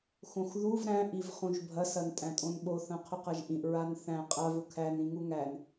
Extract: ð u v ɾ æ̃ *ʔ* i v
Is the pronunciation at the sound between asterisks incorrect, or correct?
correct